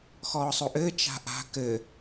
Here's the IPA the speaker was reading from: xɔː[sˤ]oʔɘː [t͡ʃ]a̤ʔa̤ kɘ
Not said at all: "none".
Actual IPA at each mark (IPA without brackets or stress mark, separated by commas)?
sˤ, t͡ʃ